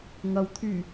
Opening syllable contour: rising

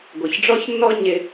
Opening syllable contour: low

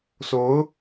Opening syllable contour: rising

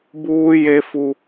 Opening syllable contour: high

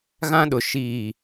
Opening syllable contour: high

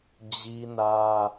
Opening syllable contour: high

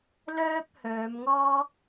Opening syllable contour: high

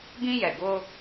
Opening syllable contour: high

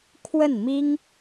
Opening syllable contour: falling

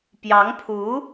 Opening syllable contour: rising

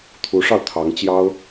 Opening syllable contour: rising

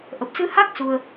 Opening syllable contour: low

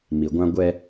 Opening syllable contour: low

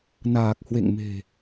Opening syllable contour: low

